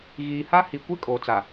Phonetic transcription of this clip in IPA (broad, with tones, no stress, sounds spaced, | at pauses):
ɣ iː˨ h a˦ h i˨ kʷ e˦ kʼ oː˨ t͡s a˨